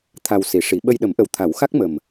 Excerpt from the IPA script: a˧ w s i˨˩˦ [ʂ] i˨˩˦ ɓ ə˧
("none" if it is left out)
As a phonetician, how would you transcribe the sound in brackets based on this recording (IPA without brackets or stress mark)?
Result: ʂ